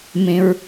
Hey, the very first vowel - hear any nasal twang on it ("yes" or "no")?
yes